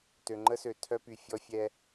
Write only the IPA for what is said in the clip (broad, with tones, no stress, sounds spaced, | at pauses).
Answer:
t ø˨ ŋ͡ǃ ə˦ s ø˨ tʰ œ˦ p y˨ fʲ ɔ˦ fʲ ɛ˦